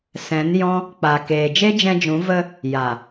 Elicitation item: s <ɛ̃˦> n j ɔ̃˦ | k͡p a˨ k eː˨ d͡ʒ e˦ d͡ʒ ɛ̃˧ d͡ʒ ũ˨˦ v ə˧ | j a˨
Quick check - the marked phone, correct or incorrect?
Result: incorrect: ɛ̃˨˦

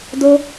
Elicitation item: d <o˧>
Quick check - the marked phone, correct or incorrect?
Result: correct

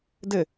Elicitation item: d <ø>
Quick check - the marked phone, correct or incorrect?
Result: incorrect: ɘ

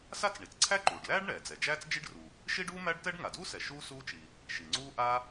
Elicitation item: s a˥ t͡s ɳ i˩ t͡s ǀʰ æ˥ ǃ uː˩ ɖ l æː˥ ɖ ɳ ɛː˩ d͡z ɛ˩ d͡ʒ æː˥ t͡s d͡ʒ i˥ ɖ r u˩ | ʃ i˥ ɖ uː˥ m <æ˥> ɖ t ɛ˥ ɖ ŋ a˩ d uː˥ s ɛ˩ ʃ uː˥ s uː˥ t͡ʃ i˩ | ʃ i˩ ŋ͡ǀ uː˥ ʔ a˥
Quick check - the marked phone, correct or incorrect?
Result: correct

